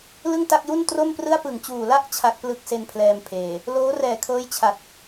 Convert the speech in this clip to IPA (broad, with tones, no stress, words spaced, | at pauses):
lɯ˥˩ŋta˥˩k̚ju˥˩n tro˥˩mprɯ˥˩a̯ pɯ˨˩ŋt͡ɕuː˨˩la˥˩ʔ t͡ɕʰa˦˥k̚plɯ˦˥k̚se˧npʰlɛː˧m pʰeː˨˩ | loː˦˥rɛː˨˩kʰɤː˦˥j t͡ɕʰa˨˩t̚